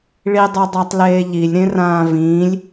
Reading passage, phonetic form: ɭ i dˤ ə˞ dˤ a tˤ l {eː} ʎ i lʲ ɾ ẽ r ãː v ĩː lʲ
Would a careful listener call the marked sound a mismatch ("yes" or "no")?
no